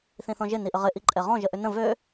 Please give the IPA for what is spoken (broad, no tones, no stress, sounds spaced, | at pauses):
θ ĩ θ ɔ̃ ʒ ɪ n i ʔ ə ʁ ɪ ʔ i ǃʼ ɛ ʁ ɔ̃ ʒ ə ʔ ʏ n ə̃ v ø